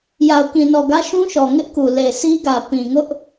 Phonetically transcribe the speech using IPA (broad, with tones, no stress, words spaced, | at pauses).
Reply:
ja˨ʊ̯kĩ˨nɔ˨ɡä˦ ʃũ˦ʃɔ˨ ŋɪ˦ʔku˨ le˨sʰi˦ɡä˨ pĩ˨ŋʊ˦ʔ